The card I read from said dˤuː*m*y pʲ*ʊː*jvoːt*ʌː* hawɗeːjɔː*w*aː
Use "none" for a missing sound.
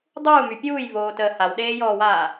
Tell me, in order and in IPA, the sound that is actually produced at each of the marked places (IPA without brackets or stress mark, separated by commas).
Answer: m, uː, əː, w